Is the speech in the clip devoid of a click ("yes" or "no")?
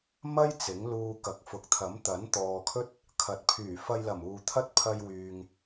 yes